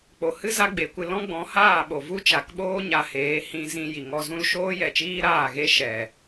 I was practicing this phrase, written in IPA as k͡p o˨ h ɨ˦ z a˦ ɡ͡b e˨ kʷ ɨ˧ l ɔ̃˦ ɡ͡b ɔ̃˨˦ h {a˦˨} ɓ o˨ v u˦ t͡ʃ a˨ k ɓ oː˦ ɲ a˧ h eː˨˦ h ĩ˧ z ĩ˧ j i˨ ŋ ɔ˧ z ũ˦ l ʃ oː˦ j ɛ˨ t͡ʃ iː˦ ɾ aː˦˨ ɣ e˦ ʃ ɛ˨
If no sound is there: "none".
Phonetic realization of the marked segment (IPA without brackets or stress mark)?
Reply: aː˦˨